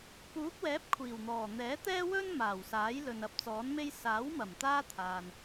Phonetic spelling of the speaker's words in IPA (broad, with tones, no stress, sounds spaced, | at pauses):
p uː˨˥ k̚ w ɛː˨˥ p̚ kʷʰ iː˨˩ w n̪ ɔː˨˩ n̪ ɛː˨˥ t̪ ɛː˥ w ɵ˥ n m aː˨˩ w s aː˨˥ j l ɵ˨ n ɐ˧ p̚ t͡s ɔː˨˥ n m e˥ j s aː˨˥ w m ɐ˨˩ m t̪ aː˥ t̪ʰ aː˨ n